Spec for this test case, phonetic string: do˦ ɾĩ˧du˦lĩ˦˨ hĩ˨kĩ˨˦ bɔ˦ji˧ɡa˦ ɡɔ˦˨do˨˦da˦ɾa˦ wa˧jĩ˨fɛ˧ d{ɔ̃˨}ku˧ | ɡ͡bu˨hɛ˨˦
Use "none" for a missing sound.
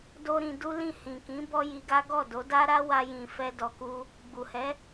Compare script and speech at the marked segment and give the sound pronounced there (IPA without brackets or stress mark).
ɔ˨